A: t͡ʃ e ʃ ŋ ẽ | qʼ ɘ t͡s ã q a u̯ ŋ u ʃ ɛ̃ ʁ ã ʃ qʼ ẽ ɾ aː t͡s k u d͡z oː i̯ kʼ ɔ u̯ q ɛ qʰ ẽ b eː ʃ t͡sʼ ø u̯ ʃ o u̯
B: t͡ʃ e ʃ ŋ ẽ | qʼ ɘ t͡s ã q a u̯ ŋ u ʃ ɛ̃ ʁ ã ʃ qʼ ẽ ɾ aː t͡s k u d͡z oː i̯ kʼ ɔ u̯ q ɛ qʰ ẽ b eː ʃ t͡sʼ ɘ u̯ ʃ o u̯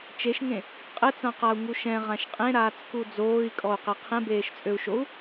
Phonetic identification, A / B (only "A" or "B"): A